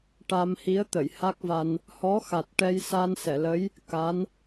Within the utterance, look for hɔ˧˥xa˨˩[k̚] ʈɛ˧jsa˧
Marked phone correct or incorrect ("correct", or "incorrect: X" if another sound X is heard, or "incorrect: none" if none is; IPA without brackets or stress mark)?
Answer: incorrect: t̚